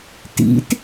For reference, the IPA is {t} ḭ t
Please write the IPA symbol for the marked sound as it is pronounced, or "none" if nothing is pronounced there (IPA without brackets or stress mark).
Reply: t